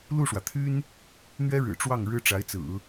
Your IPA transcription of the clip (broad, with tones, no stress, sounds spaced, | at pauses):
l u˥˩ ʂ w ä˩ t̪ʰ y˥ n | n̪ ɥ ɛ˥ ɻ ɻ̩˨˩ ʈ͡ʂ w ɑ˥˩ ŋ ɻ ɻ̩˥ ʈ͡ʂ a˧˥ ɪ̯ t͡s ɹ̩˨˩˦